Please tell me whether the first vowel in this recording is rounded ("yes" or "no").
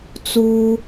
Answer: yes